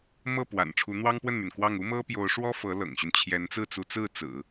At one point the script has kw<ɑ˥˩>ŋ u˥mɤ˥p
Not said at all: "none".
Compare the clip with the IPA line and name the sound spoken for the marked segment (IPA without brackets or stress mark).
ɑ˥˩